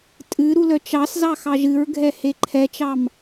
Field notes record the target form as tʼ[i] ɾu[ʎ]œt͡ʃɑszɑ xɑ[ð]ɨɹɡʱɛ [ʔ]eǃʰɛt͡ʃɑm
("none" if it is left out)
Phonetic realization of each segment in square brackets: ɨ, l, ʒ, h

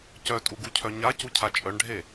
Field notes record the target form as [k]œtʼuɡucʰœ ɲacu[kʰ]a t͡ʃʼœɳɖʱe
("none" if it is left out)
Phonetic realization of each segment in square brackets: c, cʰ

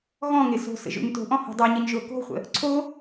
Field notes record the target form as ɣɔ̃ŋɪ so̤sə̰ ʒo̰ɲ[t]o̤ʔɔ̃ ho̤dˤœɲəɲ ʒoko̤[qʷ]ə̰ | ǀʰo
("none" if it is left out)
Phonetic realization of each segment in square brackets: t, χʷ

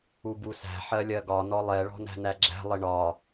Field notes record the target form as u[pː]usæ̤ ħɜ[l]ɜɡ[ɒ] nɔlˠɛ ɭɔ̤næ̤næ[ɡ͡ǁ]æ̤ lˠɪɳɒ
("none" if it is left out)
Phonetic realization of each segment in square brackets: b, lʲ, ɒ, ɡ͡ǁ

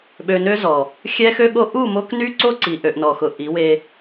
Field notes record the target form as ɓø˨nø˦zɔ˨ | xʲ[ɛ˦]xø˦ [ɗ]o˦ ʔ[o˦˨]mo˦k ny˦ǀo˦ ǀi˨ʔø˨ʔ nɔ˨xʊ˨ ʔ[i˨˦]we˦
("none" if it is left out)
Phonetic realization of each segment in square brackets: ɛ˦, ɠ, u˦˨, i˨˦

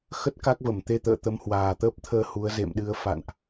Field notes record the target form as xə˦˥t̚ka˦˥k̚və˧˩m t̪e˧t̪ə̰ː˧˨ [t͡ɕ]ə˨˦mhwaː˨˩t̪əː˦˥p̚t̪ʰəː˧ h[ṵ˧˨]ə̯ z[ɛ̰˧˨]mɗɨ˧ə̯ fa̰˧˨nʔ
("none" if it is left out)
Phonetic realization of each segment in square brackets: t̪, u˨˦, ḛ˧˨

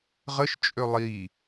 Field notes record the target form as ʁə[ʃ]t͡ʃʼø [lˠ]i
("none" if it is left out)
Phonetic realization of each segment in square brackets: ʃ, lˠ

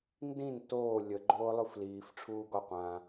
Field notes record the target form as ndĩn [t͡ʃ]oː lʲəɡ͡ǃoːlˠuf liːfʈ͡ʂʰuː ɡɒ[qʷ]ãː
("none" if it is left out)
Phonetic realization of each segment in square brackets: t, qʷ

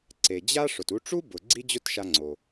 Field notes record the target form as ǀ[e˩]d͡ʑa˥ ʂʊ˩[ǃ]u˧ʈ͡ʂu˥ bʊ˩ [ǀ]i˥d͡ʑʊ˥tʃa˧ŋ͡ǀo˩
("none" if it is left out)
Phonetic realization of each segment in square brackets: e˩, t, ɡ͡ǀ

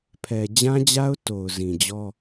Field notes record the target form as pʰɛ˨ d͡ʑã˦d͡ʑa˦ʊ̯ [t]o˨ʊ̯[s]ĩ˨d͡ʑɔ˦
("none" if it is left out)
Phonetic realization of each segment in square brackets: t, z

